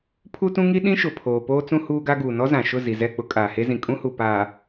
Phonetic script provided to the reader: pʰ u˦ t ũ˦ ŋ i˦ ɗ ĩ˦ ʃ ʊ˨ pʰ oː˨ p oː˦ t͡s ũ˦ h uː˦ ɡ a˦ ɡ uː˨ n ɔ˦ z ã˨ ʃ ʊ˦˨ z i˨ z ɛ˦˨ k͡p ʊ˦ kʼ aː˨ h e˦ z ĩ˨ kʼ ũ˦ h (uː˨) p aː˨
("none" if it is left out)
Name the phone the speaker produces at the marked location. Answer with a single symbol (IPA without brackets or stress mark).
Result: u˨